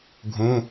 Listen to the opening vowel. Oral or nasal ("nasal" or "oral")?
nasal